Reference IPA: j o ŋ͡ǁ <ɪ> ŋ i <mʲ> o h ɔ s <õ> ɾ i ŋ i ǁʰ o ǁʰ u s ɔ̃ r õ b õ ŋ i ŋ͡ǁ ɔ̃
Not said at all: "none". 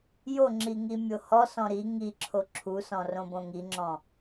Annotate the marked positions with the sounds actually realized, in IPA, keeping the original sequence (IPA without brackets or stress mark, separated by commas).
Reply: i, mʲ, ɔ̃